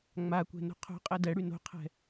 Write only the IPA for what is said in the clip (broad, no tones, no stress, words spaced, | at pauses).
ŋ͡makʷɛ̤ no̤qʰo̤qʼɛ dɛɽy no̤qʰɛ̤